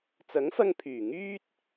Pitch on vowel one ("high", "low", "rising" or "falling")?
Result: rising